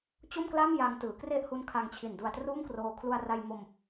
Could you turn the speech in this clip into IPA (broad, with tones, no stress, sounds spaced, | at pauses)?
t͡ɕ o˥˩ m k l a˥˩ m j a˧ ŋ t ɯː˩˦ k r e˥˩ ʔ h u˦˥ n kʰ a˧ ŋ t͡ɕʰ i˨˩ n d u˧ a̯ t r uː˥˩ m k r oː˧ kʰ l u˧ a̯ r a˧ j m o˧ m